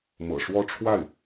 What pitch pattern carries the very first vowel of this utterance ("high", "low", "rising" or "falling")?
low